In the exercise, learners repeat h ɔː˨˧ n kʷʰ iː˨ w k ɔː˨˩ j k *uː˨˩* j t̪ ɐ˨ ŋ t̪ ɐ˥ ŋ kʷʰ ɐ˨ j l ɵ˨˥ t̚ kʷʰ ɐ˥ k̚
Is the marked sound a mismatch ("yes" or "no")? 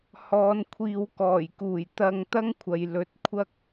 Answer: no